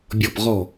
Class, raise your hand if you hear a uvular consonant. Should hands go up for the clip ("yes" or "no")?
yes